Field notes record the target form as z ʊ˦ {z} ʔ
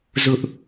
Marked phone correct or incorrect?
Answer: incorrect